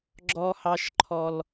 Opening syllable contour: high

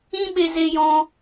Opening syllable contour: high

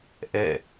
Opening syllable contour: falling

